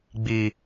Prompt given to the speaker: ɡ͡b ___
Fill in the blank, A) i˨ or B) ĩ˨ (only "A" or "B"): A